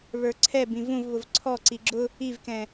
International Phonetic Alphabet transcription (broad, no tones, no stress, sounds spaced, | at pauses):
β ə˞ ǀʰ ɛ b ĩ v ũ v β ʊ v ǀʰ ɔ ǀ i ɡ͡ǁ ʊ | i v k ɛ̃